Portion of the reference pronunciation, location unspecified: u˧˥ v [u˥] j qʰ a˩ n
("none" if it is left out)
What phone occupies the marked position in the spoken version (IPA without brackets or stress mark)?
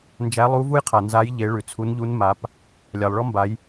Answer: u˥